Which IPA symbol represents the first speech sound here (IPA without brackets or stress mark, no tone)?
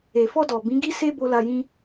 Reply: e